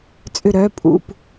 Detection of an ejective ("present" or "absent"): present